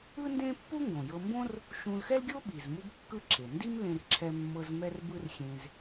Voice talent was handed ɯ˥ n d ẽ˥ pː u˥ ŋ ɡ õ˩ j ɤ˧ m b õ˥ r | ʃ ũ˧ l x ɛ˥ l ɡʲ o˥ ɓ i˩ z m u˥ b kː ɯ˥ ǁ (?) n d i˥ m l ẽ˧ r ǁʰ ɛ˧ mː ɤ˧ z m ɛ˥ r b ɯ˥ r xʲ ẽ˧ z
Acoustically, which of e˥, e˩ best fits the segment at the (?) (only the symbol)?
e˩